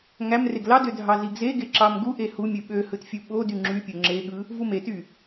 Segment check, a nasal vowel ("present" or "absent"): absent